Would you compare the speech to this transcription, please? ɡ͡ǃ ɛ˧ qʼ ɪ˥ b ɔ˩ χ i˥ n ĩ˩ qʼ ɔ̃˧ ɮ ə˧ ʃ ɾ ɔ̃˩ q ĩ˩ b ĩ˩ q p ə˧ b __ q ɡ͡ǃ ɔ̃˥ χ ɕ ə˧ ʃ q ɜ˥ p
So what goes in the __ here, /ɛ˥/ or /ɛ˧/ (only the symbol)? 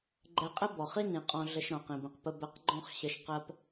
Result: ɛ˧